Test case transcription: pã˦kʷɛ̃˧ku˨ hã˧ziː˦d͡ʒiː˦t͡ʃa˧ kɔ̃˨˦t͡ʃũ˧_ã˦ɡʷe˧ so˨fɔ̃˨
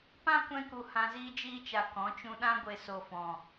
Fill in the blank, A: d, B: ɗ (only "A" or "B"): B